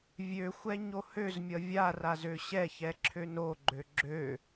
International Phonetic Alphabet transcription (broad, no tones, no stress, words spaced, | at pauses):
vʲøxʷɛ ɲohøzmʲʌ vʲaraz øɕɛçɛ ǁʰønoɡ͡ǃø ɡ͡ǁø